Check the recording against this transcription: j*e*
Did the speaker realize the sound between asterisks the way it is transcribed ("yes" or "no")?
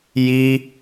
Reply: no